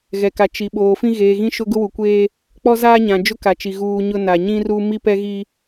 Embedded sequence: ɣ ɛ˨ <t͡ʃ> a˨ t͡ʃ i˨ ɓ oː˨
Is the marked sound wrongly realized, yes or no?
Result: yes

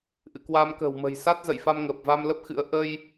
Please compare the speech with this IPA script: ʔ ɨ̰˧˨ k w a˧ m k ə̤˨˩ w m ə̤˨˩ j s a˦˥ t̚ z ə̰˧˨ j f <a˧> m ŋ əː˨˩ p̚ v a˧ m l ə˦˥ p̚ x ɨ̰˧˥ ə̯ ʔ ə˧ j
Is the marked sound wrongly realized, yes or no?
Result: no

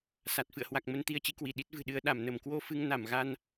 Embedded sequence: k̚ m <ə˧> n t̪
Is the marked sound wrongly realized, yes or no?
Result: no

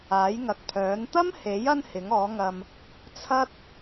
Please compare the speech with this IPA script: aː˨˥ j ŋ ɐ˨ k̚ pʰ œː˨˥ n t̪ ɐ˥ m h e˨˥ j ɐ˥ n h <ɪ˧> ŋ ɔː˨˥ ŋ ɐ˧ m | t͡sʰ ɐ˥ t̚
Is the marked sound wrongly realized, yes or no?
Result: yes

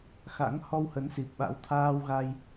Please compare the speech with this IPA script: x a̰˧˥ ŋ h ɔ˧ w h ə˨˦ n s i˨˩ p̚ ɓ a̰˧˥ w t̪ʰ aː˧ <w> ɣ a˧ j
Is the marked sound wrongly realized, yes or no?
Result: no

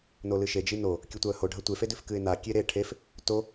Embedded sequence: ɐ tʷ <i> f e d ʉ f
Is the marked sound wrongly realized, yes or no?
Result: yes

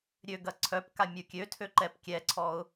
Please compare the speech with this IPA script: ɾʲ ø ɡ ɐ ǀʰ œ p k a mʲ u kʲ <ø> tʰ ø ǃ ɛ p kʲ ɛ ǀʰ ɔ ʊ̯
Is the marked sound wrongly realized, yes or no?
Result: no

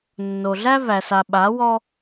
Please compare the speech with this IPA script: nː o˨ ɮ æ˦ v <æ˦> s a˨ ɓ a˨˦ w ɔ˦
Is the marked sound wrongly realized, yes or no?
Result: yes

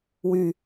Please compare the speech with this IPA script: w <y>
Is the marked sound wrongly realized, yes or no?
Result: no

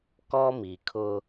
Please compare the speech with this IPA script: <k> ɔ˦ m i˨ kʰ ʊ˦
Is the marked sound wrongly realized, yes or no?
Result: no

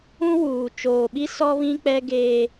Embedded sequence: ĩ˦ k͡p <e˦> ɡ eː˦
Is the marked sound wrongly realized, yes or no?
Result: yes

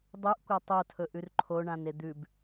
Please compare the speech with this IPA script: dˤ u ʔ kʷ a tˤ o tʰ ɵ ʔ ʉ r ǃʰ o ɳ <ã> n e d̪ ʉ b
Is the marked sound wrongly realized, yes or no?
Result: no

